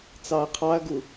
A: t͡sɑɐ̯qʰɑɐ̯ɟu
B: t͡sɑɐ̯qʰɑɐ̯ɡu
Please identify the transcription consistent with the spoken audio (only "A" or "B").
B